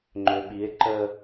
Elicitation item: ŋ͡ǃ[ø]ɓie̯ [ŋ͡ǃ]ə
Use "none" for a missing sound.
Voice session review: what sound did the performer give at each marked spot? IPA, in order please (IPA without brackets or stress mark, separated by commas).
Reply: ø, ǃ